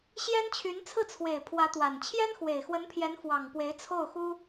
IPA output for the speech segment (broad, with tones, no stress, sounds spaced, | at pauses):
ɕ j ɛ˥ n t͡ɕʰ y˧˥ n t͡sʰ ɹ̩˥˩ t͡sʰ w e˨˩ ɪ̯ pʰ w ä˧˥ t̪ w a˨˩ n t͡ɕʰ j ɛ˥ n x w e˨˩ ɪ̯ x w ə˧˥ n pʰ j ɛ˧˥ n f w ɑ˨˩ ŋ p w e˧˥ ɪ̯ t͡sʰ o˥˩ ʊ̯ x u˥